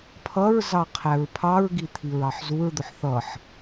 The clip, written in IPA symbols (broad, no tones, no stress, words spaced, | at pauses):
pʰʌɹzɑ qʰæɹpʰɑɹɡi t̪ʰiɹɑħzuɹd̪ʊħ θʌħ